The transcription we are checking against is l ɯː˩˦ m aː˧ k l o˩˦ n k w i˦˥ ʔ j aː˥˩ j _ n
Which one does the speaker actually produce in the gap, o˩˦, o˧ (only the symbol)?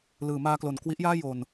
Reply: o˧